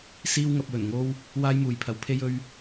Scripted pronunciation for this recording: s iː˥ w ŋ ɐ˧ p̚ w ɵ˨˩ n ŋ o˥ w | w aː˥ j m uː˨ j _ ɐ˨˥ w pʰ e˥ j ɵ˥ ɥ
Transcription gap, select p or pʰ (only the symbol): pʰ